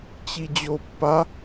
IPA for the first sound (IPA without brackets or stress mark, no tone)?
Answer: t͡ɕ